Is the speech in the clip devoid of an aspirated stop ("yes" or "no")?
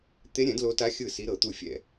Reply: yes